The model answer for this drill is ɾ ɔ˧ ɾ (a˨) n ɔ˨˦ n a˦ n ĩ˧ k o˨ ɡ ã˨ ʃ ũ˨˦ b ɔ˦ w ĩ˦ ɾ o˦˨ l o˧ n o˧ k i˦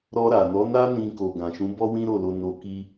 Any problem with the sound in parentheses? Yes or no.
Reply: no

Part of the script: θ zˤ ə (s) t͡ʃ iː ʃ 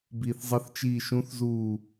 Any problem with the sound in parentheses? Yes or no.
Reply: yes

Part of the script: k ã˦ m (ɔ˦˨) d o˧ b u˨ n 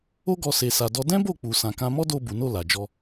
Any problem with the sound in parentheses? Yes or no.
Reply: yes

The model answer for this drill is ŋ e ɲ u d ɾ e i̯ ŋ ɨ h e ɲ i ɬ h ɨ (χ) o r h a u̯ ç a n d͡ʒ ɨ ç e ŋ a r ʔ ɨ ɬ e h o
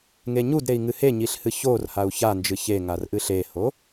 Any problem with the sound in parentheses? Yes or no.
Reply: yes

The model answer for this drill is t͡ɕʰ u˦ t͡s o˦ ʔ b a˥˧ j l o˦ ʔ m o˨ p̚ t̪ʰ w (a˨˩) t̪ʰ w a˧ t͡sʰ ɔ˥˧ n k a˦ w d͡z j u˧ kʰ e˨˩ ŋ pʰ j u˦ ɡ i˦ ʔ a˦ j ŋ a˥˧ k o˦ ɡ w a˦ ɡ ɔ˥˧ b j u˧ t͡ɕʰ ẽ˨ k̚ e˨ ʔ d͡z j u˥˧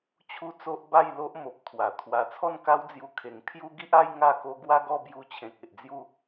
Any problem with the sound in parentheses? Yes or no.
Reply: no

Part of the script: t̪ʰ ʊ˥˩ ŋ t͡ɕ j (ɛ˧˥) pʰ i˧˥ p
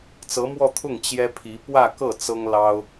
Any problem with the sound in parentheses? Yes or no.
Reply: yes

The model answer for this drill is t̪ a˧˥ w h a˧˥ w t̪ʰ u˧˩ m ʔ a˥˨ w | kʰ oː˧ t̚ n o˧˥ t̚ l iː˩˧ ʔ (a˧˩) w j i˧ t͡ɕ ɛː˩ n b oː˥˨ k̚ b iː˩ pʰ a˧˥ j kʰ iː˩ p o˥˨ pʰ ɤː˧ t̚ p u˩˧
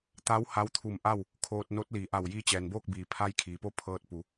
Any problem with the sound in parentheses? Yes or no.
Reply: no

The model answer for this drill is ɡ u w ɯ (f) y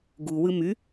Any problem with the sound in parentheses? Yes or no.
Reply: yes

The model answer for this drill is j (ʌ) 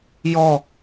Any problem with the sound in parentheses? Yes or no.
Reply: yes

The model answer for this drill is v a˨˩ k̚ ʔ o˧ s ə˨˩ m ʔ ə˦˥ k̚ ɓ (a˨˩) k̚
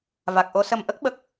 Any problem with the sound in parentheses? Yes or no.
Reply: yes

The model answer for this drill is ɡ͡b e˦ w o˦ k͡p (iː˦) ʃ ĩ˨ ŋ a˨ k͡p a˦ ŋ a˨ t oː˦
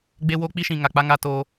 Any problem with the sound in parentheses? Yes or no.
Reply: yes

